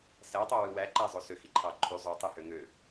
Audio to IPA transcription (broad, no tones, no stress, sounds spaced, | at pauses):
s æ tˤ o w ɯ w æ ǃ æ zˤ o s ø x i ǃʰ ɑ ǃʰ y zˤ o tˤ ɯ h ø ŋ ø